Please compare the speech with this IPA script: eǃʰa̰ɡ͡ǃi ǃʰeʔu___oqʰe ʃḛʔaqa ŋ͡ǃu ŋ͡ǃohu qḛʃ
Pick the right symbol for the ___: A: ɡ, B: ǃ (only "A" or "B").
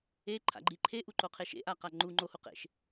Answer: B